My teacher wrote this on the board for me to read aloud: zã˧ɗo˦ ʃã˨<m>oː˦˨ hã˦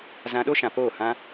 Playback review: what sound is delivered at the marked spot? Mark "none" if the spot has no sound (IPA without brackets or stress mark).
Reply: p